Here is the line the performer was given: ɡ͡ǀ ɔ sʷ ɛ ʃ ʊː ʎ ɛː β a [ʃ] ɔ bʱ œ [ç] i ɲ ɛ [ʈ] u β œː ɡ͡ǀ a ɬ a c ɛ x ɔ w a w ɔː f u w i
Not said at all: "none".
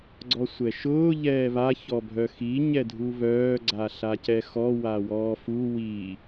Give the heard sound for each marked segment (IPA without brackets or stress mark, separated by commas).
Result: ç, x, dʱ